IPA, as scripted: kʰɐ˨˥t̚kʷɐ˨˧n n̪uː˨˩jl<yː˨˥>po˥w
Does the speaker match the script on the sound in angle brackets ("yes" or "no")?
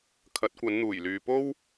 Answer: no